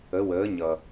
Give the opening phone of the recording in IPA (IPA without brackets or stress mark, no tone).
ə